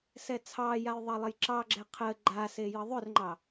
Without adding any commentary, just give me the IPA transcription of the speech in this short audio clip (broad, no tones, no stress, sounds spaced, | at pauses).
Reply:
s ɛ t͡sʰ ɑ j a j ðˤ ɑ lˠ ə j ǁ ɑ ɡ͡ǁ ɛ qʰ ə ɡ͡ǃ a s e j ə ðˤ ʏ r ŋ͡ǃ ɑ